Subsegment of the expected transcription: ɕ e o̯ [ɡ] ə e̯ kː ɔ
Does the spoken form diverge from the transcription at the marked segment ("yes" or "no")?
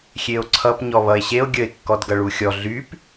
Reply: yes